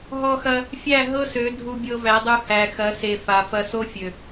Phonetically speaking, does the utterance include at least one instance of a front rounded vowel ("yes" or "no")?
yes